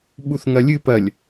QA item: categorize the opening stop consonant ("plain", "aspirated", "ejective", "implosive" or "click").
implosive